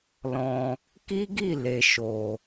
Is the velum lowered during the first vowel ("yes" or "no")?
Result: yes